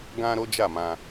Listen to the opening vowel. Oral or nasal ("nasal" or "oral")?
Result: nasal